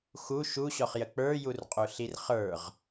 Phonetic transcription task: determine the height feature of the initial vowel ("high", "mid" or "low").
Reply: high